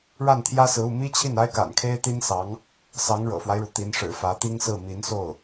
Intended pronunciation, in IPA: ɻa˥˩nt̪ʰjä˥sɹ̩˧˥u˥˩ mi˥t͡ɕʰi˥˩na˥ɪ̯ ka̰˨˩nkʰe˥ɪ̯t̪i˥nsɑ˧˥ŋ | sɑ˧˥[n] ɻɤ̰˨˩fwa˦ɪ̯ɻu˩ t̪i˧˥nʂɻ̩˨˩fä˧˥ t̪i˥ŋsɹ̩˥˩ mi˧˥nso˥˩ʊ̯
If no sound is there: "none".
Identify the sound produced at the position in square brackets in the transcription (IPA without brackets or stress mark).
ŋ